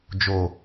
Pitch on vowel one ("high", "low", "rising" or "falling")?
low